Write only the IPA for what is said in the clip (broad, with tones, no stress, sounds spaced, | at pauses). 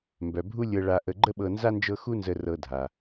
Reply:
m b œ˩ bʱ u˥ lʲ ɤ˧ ɭ a˧ ʔ ə˧ ɡ͡ǃ ə˥ ɓ ɤ˧ n z a˥ n d͡ʒ ɤ˥ x u˥ n z ə˧ r ɤ˧ dʱ a˩